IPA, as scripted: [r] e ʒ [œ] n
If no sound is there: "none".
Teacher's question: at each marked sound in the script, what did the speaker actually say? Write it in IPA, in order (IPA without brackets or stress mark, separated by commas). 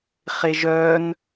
χ, œ